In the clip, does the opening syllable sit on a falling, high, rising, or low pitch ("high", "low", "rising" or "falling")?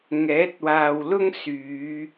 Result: rising